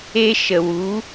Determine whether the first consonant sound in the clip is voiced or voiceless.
voiceless